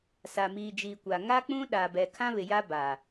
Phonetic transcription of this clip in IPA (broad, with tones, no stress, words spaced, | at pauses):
sa˨miː˨d͡ʒiː˨kʷa˨ ŋa˦k͡pũ˦ ɗa˨bɛ˨ kʰã˦βɪ˨ja˦ ba˨